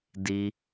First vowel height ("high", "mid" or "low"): high